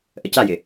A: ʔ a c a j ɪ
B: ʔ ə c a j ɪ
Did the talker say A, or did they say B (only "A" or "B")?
B